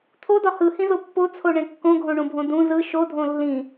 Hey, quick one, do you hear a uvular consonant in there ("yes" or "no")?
no